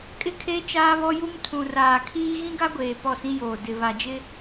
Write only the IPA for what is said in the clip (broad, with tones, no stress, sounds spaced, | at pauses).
kʼ ɪ˦ kʰ e˦ t͡ʃ aː˦ β ɔ˦ j u˦ m tʰ ũ˨ r aː˨ kʰ iː˦ ɣ ĩ˦ ɡ a˦ ɡʷ eː˨ p ɔ˦˨ s ĩ˦ j oː˨ d ɪ˨ β a˨ d͡ʒ ɪ˦